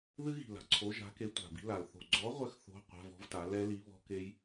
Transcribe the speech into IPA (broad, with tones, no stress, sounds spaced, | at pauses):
ð ɨ˦˥ ɣ i̤˨˩ l a̤˨˩ ǀʰ o˨˥ ʒ a̤˨˥ k e˨˥ tʷ a̤˨˩ b i̤˨˥ l a˨˩ l θ o̤˨˩ ɡ͡ǀ ɔ˨˥ ʁʷ ɘ˨˥ x θ o̤˧˥˧ qʷ a̤˧˥˧ v ɔ̤˦˥ v t a˨˥ l ɛ˦˥ l i˨˥ β ɔ̤˦˥ k e˦˥ j